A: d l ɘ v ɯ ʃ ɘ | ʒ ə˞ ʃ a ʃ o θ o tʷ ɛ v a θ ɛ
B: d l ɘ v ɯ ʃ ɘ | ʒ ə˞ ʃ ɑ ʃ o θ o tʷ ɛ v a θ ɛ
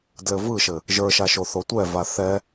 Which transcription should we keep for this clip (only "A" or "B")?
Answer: A